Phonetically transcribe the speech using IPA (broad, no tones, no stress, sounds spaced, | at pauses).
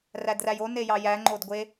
r æ d r æ j o n e j ɑ j æ ŋ͡ǃ o d ɡʷ e